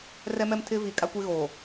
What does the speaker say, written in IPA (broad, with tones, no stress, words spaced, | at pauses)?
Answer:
rɛ˦mɛ˦mtʰɪ˦ vi˨kʼa˦kʷe˦ɣoː˨